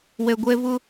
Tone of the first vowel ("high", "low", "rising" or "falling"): low